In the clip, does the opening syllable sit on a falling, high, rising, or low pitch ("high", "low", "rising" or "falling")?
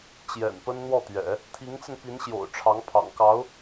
low